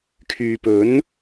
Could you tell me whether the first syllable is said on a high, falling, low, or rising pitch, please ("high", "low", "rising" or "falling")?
low